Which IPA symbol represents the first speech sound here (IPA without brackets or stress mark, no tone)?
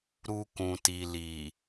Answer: ɾ